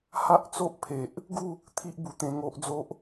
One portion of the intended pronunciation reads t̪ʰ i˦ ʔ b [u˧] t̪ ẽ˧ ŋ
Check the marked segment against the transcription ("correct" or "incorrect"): correct